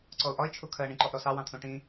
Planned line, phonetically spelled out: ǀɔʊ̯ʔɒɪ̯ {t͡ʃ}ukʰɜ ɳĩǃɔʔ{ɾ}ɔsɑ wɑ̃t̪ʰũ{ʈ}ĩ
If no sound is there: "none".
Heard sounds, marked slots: t͡ʃʰ, ɾ, ʈ

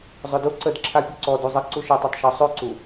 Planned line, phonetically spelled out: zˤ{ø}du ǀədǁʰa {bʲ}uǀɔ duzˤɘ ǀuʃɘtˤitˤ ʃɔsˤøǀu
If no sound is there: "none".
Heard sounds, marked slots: ø, pʲ

